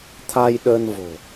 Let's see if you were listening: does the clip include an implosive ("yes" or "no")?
yes